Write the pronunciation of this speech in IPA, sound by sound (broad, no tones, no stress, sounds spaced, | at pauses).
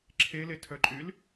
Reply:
ǁʰ e l e tʰ œ ǃʼ y l